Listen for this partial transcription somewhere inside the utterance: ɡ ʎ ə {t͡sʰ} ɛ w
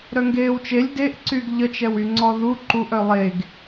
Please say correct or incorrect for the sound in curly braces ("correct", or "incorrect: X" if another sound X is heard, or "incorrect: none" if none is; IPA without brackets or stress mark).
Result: incorrect: t͡ʃ